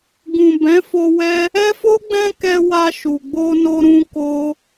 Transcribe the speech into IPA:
ɡ ũ˨ b ɛ̃˨˦ f o˧ w ɛ˦ | ɛ˦ f o˦ ɡ͡b ɛ̃˦ k ɛ˧ w a˧ ʃ u˨ ɡ͡b o˧ n o˧ ɾ ũ˦ k o˦

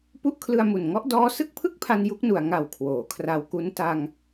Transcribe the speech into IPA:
p u˦˥ ʔ kʰ l ɯ˧ a̯ m u˨˩ n ŋ ɔ˦˥ ʔ d ɔː˥˩ s ɯ˥˩ k̚ pʰ ɯ˥˩ k̚ pʰ a˧ n j u˦˥ k̚ n u˨˩ a̯ ŋ a˨˩ w kʰ w oː˩˦ kʰ r a˧ w k u˦˥ n t a˧ ŋ

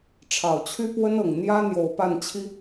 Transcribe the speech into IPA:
ʈ͡ʂʰ ɑ˨˩ ʊ̯ t͡ɕʰ y˥ p w ə˥ n ɤ˨˩ ŋ n̪ j ä˥ n̪ j o˨˩ ʊ̯ p a˥˩ n t͡ɕʰ i˥

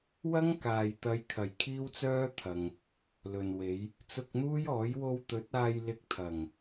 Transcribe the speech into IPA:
w ɐ˥ ŋ k aː˨ j t̪ ɐ˨˧ j kʰ ɐ˨˩ j kʰ iː˥ w t͡s œː˥ t̪ʰ ɐ˨ ŋ | l ɵ˨ n w e˨˧ j | t͡s ʊ˧ k̚ n̪ uː˥ j ɔː˨˥ j w o˧ w t̪ ɵ˨˥ t̚ aː˧ j l ɪ˧ k̚ t̪ʰ ɐ˨˩ ŋ

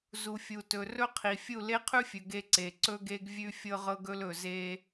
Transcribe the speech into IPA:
z u˨ fʲ u˨ t ɵ˨ r ɵ˦ qʰ i˨ fʲ u˦˨ l e˦ qʰ ʉ˦ fʲ ɵ˨ ɡ e˦ ǀ e˨ ǀ ɵ˦ ɡ e˦ ɡ vʲ ʉ˦ fʲ ɤ˦ ʁ ɤ˦ ɡ ɵ˦ l ɵ˨ z e˦

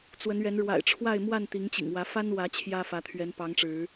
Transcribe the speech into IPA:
t͡s w ə˨˦ n ɥ ɛ˨˦ n ɻ w a̰˨˩ ɪ̯ ʈ͡ʂʰ w a˥˨ ɪ̯ m w a˥˨ n t̪ i˨˦ ŋ t͡ɕ ḭ˨˩ ŋ w ä˨˦ f a˦ n w ä˨˦ t͡ɕʰ j ä˦ f ä˨˦ t̪ʰ ɥ ɛ˨˦ n p ɑ˨˦ ŋ ʈ͡ʂ ɻ̩˨˦

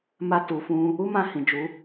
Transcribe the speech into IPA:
m a˧ t u˨ f ũ˧ | u˦ m ã˦˨ h ĩ˨ d͡ʒ u˨˦

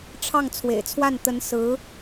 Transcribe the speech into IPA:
ʈ͡ʂʰ ɑ˥˩ ŋ t͡sʰ w ḛ˨˩ ɪ̯ t͡sʰ w a˥˩ n t̪ ə˧˥ n s ɹ̩˧˥

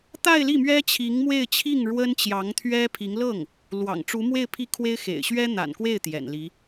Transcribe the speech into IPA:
t̪ a˥˧ ɪ̯ l i˥˩ m ɥ ɛ˥ t͡ɕʰ i˧˥ ŋ m w e˥˧ ɪ̯ t͡ɕʰ i˥˩ ŋ ɻ w ə˥ n t͡ɕ j ɑ˧˥ ŋ t̪ʰ ɥ ɛ˥ pʰ i˧˥ ŋ l ɤ˥˩ ŋ | l w ɑ̰˨˩ ŋ ʈ͡ʂ u˧˥ m w e˥˧ ɪ̯ pʰ i˥˩ kʰ w e˥ ɪ̯ x ḛ˨˩ ɪ̯ ɕ ɥ ɛ˥ n̪ a̰˨˩ n k w e˥˩ ɪ̯ t̪ j ɛ̰˨˩ n l i˧˥

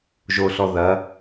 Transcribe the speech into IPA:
ʒ o ɬ ɔ ð ɐ

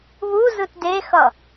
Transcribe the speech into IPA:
β u z ɯ t d e x ʌ

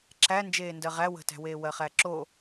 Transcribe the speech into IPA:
ǁʰ æ n d͡ʒ eː n d ɜ ʁ æ w ə̤ t æ̤ w eː w ɜ χ æ ǁ o

